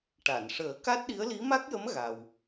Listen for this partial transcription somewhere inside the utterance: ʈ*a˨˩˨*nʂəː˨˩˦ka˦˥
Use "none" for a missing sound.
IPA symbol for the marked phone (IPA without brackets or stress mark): a˨˩˨